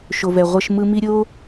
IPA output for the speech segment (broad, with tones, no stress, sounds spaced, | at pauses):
ʃ o˨ v ɛ˨ ʁʷ ʌ˧ ʃ m ɯ˧ m i˦ ɾʲ o˦